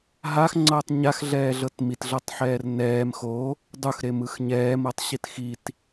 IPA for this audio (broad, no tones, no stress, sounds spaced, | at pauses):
ɦ a x ŋ͡ǀ ɤː tˤ ɲ a x ɮ ɛː ɮ ɤ t m i t ɮ ɤ tˤ ħ ɛː r n ɛː m x o | dˤ u x ɾ e m ɯ x ɲ ɛː m ɤ tˤ ɕ i t x i t